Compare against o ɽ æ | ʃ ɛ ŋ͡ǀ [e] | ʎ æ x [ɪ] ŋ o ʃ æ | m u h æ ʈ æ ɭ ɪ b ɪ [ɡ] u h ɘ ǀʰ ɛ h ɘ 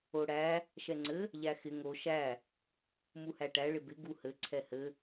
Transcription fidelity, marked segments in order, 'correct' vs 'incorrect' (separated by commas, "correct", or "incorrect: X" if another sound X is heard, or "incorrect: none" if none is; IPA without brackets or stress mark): incorrect: ɘ, correct, correct